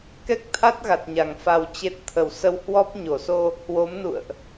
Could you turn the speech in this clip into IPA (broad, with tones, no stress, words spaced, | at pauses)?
kɛ˦˥k̚t̪ʰa˦˥t̚ɣa˨˩t̚ɲa˨˩ŋ fa˧wt͡ɕe˦˥t̚ t̪ʰə˧˩wsə˧whwɔ˦˥p̚ ɲo˧˩so˧ | hwo˨˦mnṵ˧˨ə̯ʔ